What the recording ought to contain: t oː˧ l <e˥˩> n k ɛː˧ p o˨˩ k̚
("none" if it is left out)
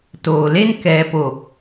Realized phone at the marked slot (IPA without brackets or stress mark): e˥˩